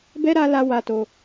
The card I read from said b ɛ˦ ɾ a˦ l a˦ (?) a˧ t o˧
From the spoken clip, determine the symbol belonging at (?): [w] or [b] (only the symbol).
w